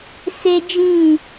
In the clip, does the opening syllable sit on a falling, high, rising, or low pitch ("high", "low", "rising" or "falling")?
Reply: high